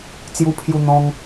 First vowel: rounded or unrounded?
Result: rounded